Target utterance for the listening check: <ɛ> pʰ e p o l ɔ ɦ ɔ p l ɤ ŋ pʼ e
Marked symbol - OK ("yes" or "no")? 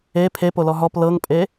no